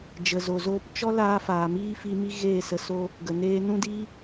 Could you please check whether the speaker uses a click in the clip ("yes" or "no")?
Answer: no